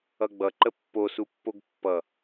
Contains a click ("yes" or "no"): yes